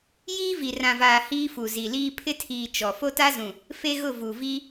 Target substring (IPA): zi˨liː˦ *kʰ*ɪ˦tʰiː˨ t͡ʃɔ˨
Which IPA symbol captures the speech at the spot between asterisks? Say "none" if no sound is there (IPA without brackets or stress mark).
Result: pʰ